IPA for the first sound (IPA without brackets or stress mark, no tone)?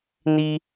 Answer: n